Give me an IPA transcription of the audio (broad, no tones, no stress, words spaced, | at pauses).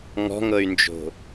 ŋɔ̤ŋɤy̯nd͡ʒo̤